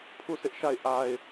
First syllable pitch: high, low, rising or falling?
falling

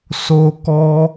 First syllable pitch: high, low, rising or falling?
high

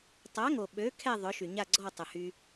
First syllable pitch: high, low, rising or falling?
rising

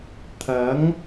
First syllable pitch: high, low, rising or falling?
rising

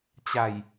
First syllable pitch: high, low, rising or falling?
low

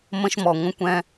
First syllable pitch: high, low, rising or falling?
high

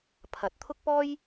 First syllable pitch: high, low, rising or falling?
rising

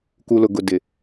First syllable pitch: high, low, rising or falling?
low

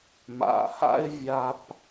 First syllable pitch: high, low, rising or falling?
low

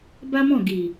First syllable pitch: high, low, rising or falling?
high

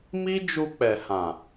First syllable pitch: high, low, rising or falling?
high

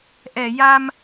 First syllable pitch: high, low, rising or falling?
low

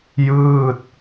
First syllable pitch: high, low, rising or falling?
falling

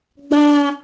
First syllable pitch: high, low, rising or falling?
high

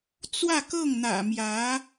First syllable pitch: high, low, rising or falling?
falling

